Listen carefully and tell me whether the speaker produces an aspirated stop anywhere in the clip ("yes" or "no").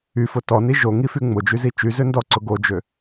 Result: no